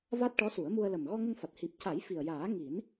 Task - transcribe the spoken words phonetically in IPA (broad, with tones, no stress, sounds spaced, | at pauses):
v a˦˥ t̚ ʈ ɔ˧˥ s u˨˩˦ ə̯ m u˧ ə̯ l ə˨˩ m ɣ ɔ˧ ŋ ə˧ ŋ f a˨˩ t̚ h i˨˩ p̚ c a˨˩˦ j f i˨˩ ə̯ j aː˨˩˦ ŋ i˨˩˦ n